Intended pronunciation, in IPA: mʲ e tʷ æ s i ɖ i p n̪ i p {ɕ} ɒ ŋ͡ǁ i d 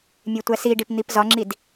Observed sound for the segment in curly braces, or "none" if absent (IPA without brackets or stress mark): z